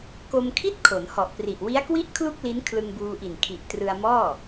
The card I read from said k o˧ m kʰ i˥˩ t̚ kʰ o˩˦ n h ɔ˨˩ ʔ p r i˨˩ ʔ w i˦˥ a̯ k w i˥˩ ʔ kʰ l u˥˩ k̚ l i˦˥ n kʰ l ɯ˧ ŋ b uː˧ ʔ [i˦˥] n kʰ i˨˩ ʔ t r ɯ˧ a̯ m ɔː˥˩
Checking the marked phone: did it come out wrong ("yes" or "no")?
yes